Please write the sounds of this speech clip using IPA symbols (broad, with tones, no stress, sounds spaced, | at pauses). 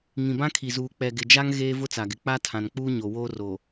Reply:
ŋ ĩ˨ b ã˦ kʰ i˨ z uː˨ k͡p ɛ˨ ɡ ɪ˨ d͡ʒ a˦ ŋ ɣ eː˦ v ʊ˦ t͡s a˨ ɡ ɪ˨ k͡p a˦ tʰ ã˨ n k͡p uː˦ ɲ o˨ w oː˦ r o˨